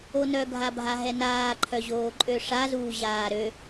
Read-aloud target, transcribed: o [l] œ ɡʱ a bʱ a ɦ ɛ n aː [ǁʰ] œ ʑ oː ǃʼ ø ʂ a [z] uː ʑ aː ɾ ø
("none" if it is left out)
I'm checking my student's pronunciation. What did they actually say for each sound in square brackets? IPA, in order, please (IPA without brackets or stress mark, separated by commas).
n, ǃʰ, z